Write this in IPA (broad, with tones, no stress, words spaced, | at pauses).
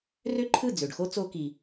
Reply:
rø˥ǃʰɯ˥˩ d͡zø˩ɖxo˥ t͡so˧ki˩